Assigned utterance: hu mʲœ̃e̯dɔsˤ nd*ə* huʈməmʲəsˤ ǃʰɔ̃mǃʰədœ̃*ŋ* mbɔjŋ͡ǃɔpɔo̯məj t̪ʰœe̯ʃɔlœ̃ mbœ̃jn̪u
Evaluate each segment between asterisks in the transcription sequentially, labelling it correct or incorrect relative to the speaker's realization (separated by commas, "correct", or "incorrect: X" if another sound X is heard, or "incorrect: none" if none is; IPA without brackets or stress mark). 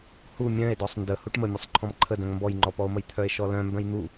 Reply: correct, correct